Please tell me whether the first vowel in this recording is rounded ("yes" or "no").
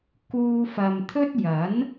yes